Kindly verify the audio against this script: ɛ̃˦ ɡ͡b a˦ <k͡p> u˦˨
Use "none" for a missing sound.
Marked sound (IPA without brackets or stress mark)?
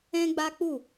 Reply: k͡p